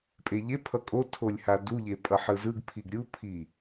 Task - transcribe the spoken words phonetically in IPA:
pʼ e ʎ e pʰ ʌ kʼ o tʰ o lʲ h a d u ʎ e pʼ ʌ ħ ɯ z ɯ ɡ pʰ i ɡ ɾʲ u pʰ i

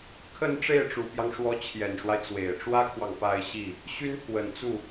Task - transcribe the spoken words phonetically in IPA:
kʰ ə˥˧ n ʈ͡ʂ e˥˩ ɪ̯ ʈ͡ʂ u˨˩ p j ɑ˦ ŋ ʂ w ɔ˧˥ t͡ɕʰ j ɛ˨˩ n ʂ w a˦ ɪ̯ t͡s w e˨˩ ɪ̯ ʈ͡ʂ w ä˥ kʰ w ɑ˨ ŋ p a˥˧ ɪ̯ ɕ i˥˩ | ɕ y˥ n t̪ʰ w ə˨˩ n t͡s u˥˩

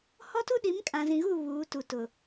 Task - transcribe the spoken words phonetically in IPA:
h ɔ˦ t u˦ ɗ i˨˦ m kʼ ã˨ z ĩ˨ ɣ u˦˨ β uː˨˦ t u˨ t ʊ˨

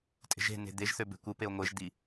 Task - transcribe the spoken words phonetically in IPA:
tʼ e̤ ʒ e̤ n e̤ d̪ e ʒ θ ø b e̤ kʷ ɯ p e o̯ ŋʷ e ʒ d̪ i

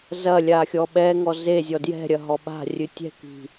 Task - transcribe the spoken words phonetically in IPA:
z ɐ lʲ a xʲ ɔ ɓ ɛ ŋ ɔ z e zʲ ɔ d j ɛ̤ ɾʲ ɐ ɦ ɔ ɓ a̤ rʲ ɨ tʲ ɛ̤ k i̤

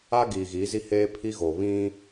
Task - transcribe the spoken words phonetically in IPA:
a˦ ɡ iː˨ ɣ iː˨˦ z i˦ h eː˦ pʰ i˦ ɣ o˨ β ĩ˦

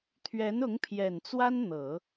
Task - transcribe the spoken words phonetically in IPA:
t̪ʰ ɥ ɛ˧˥ n ʊ˧˥ ŋ pʰ j ɛ˨˩ n t͡s w a˥ n n̪ ɤ˨˩˦

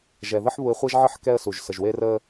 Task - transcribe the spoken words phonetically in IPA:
ʒ ɛ˨ ð ə˦ ħ β u˧ ɪ̯ χʷ e˦ ʒ ʕ ə˦ ħ k ɛ˦ ə̯ s u˨ ʒ s ə˨ ʒ w e˦ r ə˦

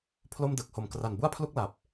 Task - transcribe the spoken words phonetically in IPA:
pʰ l o˥˩ m d ɯ˨˩ k̚ h o˨˩ m k r a˨˩ n b u˥˩ a̯ pʰ l u˥˩ k̚ l a˨˩ p̚

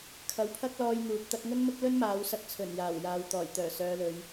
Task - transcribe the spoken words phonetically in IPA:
kʰ ɐ˨˧ w pʰ ɐ˥ k̚ l ɔː˧ j n̪ uː˨ p̚ t̪ ɐ˧ k̚ ŋ ɵ˥ n m ʊ˥ k̚ l ɵ˥ n m aː˨˧ w s ɐ˧ k̚ t͡sʰ ɵ˨˩ n j aː˨˩ w j aː˨ w t̪ ɔː˨˩ j t̪ œː˨˩ s œː˨˧ l ɵ˨˧ ɥ

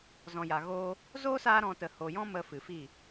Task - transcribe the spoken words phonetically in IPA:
z ɔ̃˨ j a˨ ɣ oː˦ | z oː˦ s aː˧ ɾ ɔ̃˨ t ə˨ h o˨ j ɔ̃˦ m ə˧ f ɨ˨ f i˦˨

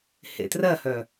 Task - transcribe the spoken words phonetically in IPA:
h ḛ t r ɜ h œ

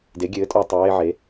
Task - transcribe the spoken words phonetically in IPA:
d e˩˥ ɡʲ ɘː˩˥ tʼ ɔ˧ tˤ ɘ˩˧ w e˧ ʕ e˩˧

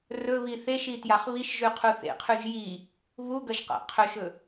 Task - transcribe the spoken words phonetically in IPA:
r ɵ β i θ e ʃ i t j a χ β i ʃ ʒ ʉ qʰ u θ ḛ qʰ ʉ ʒ j i | β u ɡ ɐ ʒ q a̰ qʰ ɵ ʃ ɵ

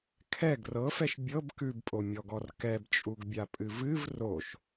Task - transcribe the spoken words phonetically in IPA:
kʰ ɛ ɡ r ɤ f ɛ ʃ bʲ ɤ b k ʉ b pʼ o mʲ ɔ ɡ ɔ r k ɛ b t͡ʃʼ u ɡ bʲ a pʼ ɨ v ɨ v r o ʃ

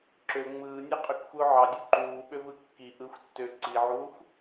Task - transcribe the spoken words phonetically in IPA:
ǁ ø ŋ͡m ɯː nʲ ɑ qʼ ø k xʷ ɯ ʊ̯ ʕ ɑ dʲ u ǃ uː ɓ ø v ɯ kː i ʔ ɯ xʷ tː ø ǀ i ʕ uː xʷ

